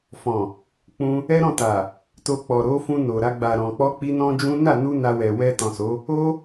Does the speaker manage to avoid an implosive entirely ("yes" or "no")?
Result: yes